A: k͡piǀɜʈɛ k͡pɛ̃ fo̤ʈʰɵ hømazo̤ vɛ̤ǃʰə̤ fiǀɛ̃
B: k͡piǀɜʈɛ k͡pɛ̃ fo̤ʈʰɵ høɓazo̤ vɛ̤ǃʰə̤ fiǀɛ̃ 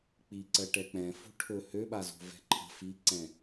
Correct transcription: B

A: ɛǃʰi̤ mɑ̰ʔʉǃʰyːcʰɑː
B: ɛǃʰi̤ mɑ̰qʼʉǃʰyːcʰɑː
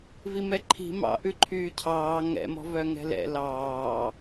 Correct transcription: A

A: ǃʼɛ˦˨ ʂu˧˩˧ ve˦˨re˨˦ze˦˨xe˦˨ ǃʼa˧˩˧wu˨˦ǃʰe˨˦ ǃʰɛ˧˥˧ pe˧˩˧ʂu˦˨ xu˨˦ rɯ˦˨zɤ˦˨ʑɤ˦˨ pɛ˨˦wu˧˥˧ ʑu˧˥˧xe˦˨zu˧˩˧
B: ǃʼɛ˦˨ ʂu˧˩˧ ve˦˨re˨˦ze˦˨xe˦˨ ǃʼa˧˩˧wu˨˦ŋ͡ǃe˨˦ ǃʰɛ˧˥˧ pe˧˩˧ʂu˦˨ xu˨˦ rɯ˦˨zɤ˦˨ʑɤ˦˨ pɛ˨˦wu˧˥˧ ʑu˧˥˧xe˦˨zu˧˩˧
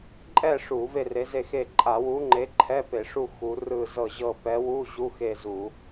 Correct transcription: B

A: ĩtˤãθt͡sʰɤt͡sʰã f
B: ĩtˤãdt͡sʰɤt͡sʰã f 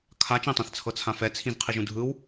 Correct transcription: A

